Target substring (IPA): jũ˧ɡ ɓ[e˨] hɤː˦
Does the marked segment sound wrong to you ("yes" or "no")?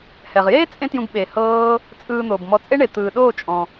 no